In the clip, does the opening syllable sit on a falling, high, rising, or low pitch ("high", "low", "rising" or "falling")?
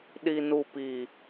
low